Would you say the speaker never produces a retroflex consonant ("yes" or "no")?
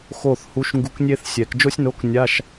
yes